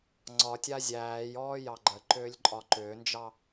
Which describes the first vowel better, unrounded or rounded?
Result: rounded